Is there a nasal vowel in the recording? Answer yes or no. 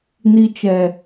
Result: no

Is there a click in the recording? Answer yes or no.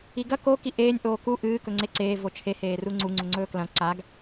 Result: yes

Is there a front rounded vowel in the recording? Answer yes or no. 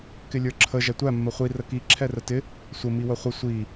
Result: no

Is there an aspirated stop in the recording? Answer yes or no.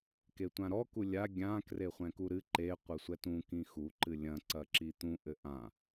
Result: no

